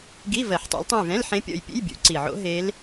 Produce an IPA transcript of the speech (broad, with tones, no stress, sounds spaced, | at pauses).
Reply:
ɡ i˧˥˧ v ɜ˨˩˦ ħ tˤ ḛ˨˦ l tˤ õ˦˨ j v ɛ̃˧˥˧ l ħ ẽ˦˥ pʲ ɔ̰˦˨ j pʲ ḛ˧˥˧ j bʲ ṵ˨˩˦ ǀ i˨˩ ʕ o̰˦˥ ɦ e˦˥ l